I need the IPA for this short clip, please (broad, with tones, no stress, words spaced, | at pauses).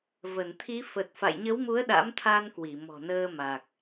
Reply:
və˧˩nt̪ʰi˨˦fə˨˩t̚ fa̰˧˨jɲə˨˦wmu˨˦ə̯ ɗa̰˧˥mt̪ʰa˧nkwi˧˩ mɔ̤˨˩nəː˧ ma˨˩k̚